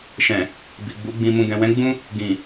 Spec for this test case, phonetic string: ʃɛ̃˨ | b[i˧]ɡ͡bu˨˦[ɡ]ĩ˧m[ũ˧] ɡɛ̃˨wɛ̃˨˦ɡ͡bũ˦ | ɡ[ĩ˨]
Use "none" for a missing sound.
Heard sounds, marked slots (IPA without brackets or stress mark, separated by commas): i˨, ɡ͡b, ũ˧, ĩ˨